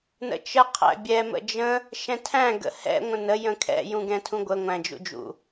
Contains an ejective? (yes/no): no